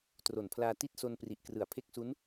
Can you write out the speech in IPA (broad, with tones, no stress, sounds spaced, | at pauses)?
t r o˨˩ n pʰ l aː˧ t i˥˩ t̚ s o˧ n p r i˨˩ ʔ k r ɯ˨˩ a̯ pʰ e˥˩ k̚ s u˦˥ n